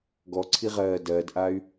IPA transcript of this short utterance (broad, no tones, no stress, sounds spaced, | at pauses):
ɡ ɔ ǀʰ i ʁ ɜː d ɜ d ʔ a y̯